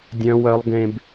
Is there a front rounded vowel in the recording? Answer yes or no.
yes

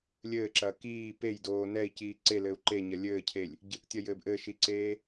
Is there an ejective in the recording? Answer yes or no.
no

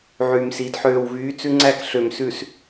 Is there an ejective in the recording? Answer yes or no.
no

